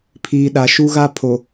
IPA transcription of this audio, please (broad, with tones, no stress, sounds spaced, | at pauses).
pʰ iː˨ ɗ a˨ ʃ u˦ ɣ a˦ pʰ o˨